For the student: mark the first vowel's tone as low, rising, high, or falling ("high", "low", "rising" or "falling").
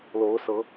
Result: rising